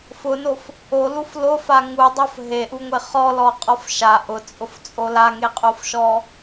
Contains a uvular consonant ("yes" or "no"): yes